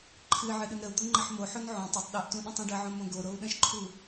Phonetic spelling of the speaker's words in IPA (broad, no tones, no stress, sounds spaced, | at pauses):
ǃʰ ɨ ʕ ɨ ɗ ɨ n ɾ ə u̯ d̪ o ŋ͡ǃ ə ħ m o ħ o n ʕ õ tˤ o tˤ ɗ ɨ ʔ t ũ ɗ ə̃ tˤ ũ ɖ ə ʕ õ m õ ɡ o ɾ o u̯ ɗ ə̃ ʃ ǃʰ u